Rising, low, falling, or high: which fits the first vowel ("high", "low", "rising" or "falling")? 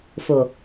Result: low